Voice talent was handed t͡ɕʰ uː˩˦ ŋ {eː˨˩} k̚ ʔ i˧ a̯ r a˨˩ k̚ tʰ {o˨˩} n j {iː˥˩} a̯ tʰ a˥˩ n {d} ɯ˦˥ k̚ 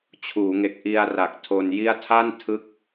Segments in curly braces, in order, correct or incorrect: incorrect, incorrect, incorrect, incorrect

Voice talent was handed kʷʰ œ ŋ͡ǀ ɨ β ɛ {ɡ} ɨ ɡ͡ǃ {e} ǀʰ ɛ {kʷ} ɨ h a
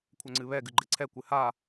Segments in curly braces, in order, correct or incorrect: correct, correct, correct

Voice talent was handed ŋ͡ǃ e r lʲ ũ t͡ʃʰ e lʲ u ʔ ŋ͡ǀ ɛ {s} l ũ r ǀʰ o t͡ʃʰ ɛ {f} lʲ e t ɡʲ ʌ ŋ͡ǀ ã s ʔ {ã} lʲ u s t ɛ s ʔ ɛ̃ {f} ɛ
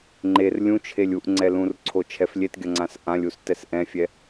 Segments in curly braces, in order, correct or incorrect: incorrect, correct, correct, incorrect

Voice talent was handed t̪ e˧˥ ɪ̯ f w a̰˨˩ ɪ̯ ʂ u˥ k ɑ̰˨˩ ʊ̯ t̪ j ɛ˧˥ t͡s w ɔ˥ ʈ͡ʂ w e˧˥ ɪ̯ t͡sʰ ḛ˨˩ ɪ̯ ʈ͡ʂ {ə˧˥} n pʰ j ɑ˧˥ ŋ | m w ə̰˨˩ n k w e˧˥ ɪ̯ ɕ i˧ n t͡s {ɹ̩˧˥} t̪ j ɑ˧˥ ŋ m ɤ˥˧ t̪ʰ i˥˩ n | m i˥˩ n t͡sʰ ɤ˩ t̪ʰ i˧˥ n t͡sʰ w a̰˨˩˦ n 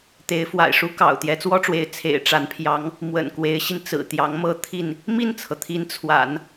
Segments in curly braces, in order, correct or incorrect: incorrect, incorrect

